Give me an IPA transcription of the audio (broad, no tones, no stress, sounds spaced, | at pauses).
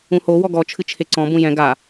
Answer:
ũ h o w ɔ ɡ ɔ t͡ʃʰ ɨ t͡ʃʰ e ǀ ɔ̃ b ũ j ɛ̃ ɡ a